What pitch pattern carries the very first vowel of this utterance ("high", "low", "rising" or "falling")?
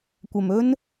low